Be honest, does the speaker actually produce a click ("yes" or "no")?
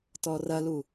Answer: no